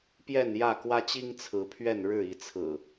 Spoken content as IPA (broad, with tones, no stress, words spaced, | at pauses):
pjɛ˥˨njä˥˨kwä˦t͡ɕi˦ŋ t͡sʰɹ̩˨˦pʰɥɛ˥˨n ɻɻ̩˥˨i˨˦t͡sʰɹ̩˨˩